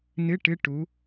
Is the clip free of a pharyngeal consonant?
yes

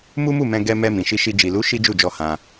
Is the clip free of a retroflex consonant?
yes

